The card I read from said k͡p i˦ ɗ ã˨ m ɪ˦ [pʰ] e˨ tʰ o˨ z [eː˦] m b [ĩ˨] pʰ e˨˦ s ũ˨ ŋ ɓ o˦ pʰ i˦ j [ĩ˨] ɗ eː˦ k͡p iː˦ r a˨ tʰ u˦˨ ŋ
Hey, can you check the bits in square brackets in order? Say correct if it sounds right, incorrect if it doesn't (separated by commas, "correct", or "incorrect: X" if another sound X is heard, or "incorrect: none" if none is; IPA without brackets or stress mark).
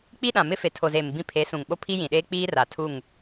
incorrect: f, incorrect: eː˨, incorrect: ĩ˦, correct